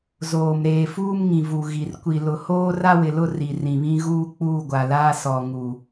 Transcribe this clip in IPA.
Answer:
zoː˨m ɾeː˨fuː˦m ŋĩ˨vu˨ ɣi˨r kʷi˨lʊ˨hoː˦ ra˦wɪ˨lʊ˦ ri˨rĩ˨βĩ˦ ɣuː˦k͡puː˦˨ɡʷa˨laː˦ sɔ˨ ŋu˨

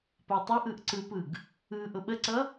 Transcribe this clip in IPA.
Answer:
patˤʌʔɯʔ ǀɯpɯɡ | ɯ ʔʊɓəǀʌ

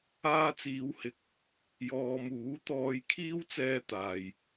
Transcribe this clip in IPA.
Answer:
aː˧t͡siː˨˧whɪ˨k̚ | jɔː˨muː˨˥ t̪ɔː˧j kʰiː˥wt͡sɛː˧ t̪aː˨j

